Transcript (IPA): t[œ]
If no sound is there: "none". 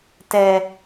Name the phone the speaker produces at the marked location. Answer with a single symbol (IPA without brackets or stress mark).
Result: ɛ